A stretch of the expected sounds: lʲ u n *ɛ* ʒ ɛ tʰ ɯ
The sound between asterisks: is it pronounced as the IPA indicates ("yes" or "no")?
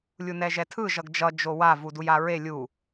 yes